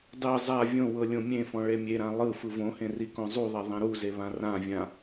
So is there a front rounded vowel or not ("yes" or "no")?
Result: no